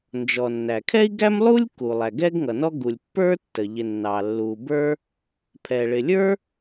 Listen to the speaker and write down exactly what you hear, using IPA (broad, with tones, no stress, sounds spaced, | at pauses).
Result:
n d͡ʒ ɔ˩ nː æ˩ kʰ ɛ˥ i̯ ɡ æ˥ m lˠ u˥ lʲ k u˩ lˠ æ˩ ɡ ɛ˥ ɡ ŋ ʌ˩ n ɔ˥ ɡ u˩ lʲ pː ə˞˥ tː ə˩ ʎ ɪ˩ nː ɑ˩ lː u˩ b ə˞˥ | pʰ ɛ˩ ɭ ɪ˩ lʲ ə˞˥